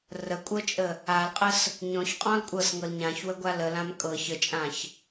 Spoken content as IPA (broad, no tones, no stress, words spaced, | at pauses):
rəkʷʼɤt͡ʃʼə | alqʼəs | ɲɔ̃çqʼɔ̃l kʷʼɤsŋɤl ɲãçwəɡʷa ləlãm kʼɤ çət͡ʃʼãç